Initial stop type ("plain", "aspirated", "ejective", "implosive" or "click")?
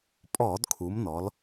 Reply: ejective